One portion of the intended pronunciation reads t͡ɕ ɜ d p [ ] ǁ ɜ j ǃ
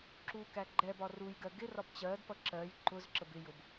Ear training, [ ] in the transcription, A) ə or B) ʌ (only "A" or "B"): B